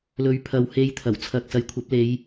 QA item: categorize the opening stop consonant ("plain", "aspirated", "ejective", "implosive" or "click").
aspirated